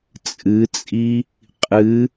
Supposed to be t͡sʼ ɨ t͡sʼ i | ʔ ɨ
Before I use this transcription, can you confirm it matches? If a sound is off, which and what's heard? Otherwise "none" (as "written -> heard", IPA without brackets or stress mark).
ʔ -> qʼ